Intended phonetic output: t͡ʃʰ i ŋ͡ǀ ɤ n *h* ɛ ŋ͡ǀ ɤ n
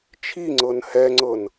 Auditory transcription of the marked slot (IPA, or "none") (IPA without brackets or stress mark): h